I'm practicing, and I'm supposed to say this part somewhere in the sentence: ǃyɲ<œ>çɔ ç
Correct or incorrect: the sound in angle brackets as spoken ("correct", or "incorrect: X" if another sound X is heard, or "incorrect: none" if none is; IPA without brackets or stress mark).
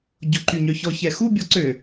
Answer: correct